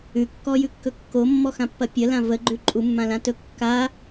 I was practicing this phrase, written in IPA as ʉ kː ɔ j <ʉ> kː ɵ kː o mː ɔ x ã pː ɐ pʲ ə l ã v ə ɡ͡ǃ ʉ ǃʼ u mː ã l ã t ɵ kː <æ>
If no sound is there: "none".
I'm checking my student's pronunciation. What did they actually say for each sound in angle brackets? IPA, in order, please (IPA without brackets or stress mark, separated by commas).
ʉ, a